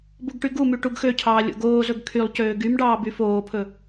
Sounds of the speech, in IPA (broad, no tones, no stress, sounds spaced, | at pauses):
b u ɡ ʈ y ɡ u m y ʈ u ɡ x ø cʰ ɑː lʲ o̰ ɡ oː z ɵ ɡ kʰ y lˠ c øː ɡ y m ɖ ɑː b y f oː pʰ ɵ